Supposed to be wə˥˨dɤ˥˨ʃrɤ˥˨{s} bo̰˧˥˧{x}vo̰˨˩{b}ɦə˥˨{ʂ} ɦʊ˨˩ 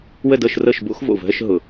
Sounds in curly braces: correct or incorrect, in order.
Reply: incorrect: ʃ, correct, incorrect: v, incorrect: ʃ

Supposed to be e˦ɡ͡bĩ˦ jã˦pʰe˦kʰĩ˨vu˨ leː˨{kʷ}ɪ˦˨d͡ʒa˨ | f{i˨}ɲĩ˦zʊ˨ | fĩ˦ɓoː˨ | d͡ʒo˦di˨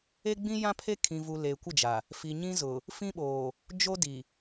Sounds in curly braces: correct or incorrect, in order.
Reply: correct, correct

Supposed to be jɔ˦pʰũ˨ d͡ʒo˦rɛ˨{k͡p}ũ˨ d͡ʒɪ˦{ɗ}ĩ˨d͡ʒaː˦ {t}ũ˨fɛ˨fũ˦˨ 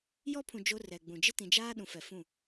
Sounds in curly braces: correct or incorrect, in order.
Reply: incorrect: ɡ͡b, incorrect: t, incorrect: ɗ

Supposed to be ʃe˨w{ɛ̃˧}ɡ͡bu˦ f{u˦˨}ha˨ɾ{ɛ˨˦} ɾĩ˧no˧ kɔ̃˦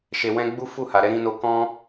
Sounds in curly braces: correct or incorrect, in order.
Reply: correct, correct, correct

